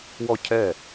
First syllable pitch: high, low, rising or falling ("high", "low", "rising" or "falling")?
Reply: falling